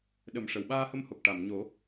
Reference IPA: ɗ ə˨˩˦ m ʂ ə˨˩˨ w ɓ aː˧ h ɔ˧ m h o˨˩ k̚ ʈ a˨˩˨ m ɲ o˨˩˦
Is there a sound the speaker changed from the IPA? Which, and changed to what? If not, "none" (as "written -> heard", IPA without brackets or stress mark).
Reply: ɔ˧ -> ə˧